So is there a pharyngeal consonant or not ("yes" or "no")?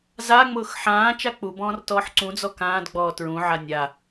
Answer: yes